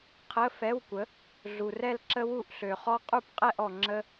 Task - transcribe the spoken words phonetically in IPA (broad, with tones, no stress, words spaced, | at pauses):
qʰə˧˥˧ fɛ˧˥˧wkʷə˩˥ | ɮu˨rɛ˥˧lǁə˥ wu˥˩ʔɬø˨χɔ˥ qʼu˥˩pqʼɛ˥˧ʔɔ˨ ŋ͡ǁə˥